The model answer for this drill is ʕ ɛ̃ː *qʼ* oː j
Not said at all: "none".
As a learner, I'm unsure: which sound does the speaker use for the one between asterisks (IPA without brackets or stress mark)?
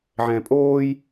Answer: pʼ